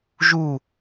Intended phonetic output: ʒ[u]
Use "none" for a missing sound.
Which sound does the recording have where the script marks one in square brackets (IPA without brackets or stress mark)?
u